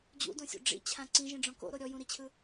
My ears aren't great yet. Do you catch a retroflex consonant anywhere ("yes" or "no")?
yes